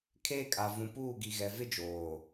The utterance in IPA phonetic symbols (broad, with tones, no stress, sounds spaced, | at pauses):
kʰ eː˦ kʼ a˨ v ũ˨ p uː˦˨ ɡ i˨ ɣ ɛ˨ v ɪ˦ d͡ʒ oː˨